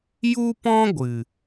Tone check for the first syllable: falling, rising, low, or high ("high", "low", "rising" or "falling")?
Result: high